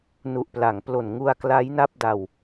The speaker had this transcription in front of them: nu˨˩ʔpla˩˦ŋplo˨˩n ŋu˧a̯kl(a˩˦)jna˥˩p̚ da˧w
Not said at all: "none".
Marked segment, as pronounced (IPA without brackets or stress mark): a˦˥